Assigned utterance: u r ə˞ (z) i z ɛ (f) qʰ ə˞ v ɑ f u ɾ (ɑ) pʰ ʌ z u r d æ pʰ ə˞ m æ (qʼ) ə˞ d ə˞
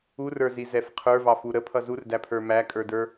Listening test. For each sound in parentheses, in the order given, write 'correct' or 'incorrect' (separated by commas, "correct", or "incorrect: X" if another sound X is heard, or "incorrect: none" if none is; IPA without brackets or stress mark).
correct, correct, incorrect: ə, incorrect: kʼ